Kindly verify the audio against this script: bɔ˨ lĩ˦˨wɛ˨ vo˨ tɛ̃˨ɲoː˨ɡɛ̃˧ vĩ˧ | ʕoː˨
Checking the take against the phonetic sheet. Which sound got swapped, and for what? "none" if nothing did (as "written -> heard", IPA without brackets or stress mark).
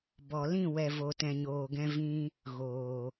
ʕ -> ɣ